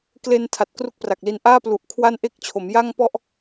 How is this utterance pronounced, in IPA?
k l e˧ n tʰ a˨˩ t̚ k r u˥˩ k̚ p r a˨˩ k̚ l i˦˥ n ʔ aː˥˩ p l u˨˩ ʔ kʰ w a˥˩ n ʔ e˥˩ k̚ t͡ɕʰ o˩˦ m j a˥˩ ŋ p ɔ˥˩ ʔ

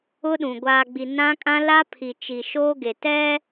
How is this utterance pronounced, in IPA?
ʊ˦ ɗ ũ˨ ɡʷ aː˨ ɡ͡b i˨ n ã˦ kʼ ã˦ l a˦ pʰ i˨ t͡ʃ i˨ ʃ oː˦ ɡ e˨ t ɛ˦

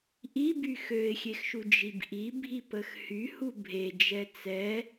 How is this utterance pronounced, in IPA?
ʔ i b y x ø ɪ̯ xʲ e x ʃ u d͡ʒ i b ʔ i bʱ i p ə x h y h u bʱ e d͡ʒ ɛ t͡s ɛ

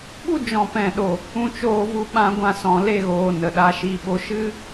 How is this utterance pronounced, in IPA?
ɓ u˦ d͡ʒ ɔ̃˨ p ɛ̃˨ ɗ o˨ | ũ˧ t͡ʃ oː˧ v u˧ ɓ ã˧ ɡʷ ã˧ s ɔ̃˨ l e˦˨ ɣ oː˨ n ə˨ ɗ a˧ ʃ i˦˨ ɓ o˦ ʃ ɨ˦

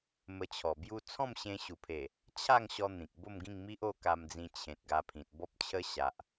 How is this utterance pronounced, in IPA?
m ə˧ t͡ɕʰ ɔ˨˩ b j u˧ t͡sʰ ɔ̃˥˧ m ɕ ẽ˧ ɕ u˨˩ pʰ e˨˩ | t͡ɕʰ a˥˧ ŋ ɕ ɔ˦ n̪ ĩ˨ k̚ b o˥˧ m ɡ ĩ˥˧ ŋ m i˦ ʔ o˥˧ k a˧ m d͡z ĩ˧ t͡ɕʰ ẽ˨ t̚ ɡ a˧ pʰ ĩ˨ t̚ b ɔ˦ p̚ t͡ɕʰ ə˦ ɕ a˨ ʔ

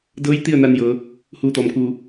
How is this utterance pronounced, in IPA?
d ɤː˧˥ j t̪ i˥˨ ə̯ n a˧ n j ɤː˩˧ | h uː˧˩ t̪ ɔː˩ m k uː˧˩

